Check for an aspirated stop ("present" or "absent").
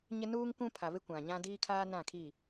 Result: present